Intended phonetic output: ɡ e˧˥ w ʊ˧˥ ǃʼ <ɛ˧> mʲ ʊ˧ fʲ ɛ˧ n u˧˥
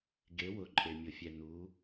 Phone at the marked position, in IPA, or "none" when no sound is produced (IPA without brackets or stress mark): e˧